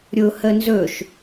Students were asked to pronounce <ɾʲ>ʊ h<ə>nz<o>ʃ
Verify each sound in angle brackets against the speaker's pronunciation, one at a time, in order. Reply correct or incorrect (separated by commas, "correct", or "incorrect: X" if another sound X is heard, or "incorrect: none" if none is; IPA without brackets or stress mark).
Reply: correct, correct, incorrect: ɵ